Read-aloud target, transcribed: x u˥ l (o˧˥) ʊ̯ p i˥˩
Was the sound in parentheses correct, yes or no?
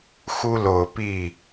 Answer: no